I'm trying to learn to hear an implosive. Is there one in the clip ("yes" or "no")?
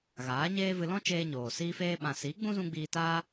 yes